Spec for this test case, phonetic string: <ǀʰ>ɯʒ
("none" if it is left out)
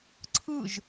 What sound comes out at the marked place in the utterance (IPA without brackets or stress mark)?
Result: ǀʰ